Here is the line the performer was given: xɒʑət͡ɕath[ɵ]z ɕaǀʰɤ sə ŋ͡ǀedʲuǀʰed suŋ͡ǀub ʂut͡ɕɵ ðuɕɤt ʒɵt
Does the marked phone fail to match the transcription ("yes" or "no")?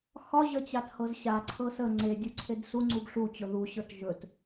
yes